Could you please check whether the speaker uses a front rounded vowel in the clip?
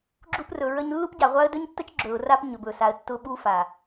no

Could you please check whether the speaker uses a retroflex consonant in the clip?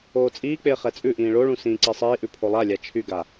yes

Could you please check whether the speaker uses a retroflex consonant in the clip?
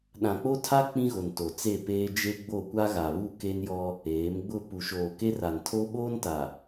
no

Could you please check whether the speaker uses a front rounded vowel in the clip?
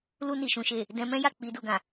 no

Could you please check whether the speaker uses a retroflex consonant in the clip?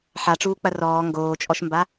yes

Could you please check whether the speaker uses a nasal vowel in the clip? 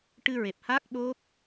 no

